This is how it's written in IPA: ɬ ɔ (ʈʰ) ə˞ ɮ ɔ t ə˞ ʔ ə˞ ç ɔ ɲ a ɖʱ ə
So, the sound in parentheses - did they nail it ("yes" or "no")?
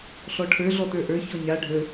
yes